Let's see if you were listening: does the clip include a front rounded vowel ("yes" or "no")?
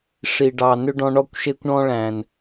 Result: yes